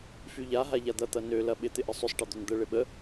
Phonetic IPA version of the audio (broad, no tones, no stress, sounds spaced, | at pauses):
f y ʎ a ɦ a ʎ a d̪ ɐ t̪ ɐ n ø l ɐ ɓ ɪ t̪ ɪ ʔ ə sˤ ʏ sˤ ʈ ɐ d̪ ø n d̪ ə ɭ ɪ ɓ ə